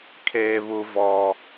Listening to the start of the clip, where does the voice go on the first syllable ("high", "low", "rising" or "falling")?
high